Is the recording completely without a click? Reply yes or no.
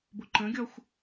no